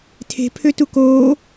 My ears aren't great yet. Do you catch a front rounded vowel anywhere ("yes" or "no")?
yes